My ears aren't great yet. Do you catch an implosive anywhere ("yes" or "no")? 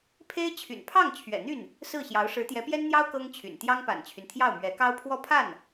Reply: no